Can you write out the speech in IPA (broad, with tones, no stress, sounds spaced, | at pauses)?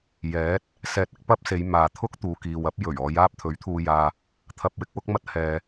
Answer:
j ɛː˨˥ t̚ | s ɛː˨ t̚ ɪ˥ k̚ p ɐ˥ p̚ s e˨˧ j m aː˨ t̪ʰ ʊ˥ k̚ t̪ uː˨ k iː˨ w ɐ˥ p̚ j ɵ˨˩ ɥ ɔː˨˧ j aː˥ p̚ t̪ʰ ɵ˨˥ ɥ t̪ʰ uː˧ j aː˧ | t̪ʰ ɐ˧ p̚ w ɪ˨˥ k̚ w ʊ˨˥ k̚ m ɐ˥ t̚ h ɛː˧